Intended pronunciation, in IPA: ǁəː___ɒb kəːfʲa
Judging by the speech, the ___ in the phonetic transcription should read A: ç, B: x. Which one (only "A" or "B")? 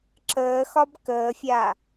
B